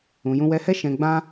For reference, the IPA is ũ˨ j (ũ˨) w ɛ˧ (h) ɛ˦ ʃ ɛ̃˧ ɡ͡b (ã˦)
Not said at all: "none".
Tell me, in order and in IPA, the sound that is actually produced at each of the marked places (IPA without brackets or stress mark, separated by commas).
ũ˧, h, ã˦